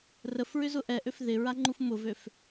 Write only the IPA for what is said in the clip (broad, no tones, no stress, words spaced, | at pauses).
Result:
rəfɹʏzʊ ʔɛʔøf ðɪɹaŋ͡ǃuf mʊvøf